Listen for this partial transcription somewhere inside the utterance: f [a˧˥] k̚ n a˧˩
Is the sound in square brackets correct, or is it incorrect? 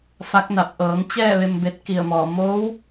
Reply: correct